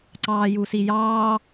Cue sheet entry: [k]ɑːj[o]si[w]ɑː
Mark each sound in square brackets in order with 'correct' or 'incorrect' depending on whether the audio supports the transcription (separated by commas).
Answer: incorrect, incorrect, incorrect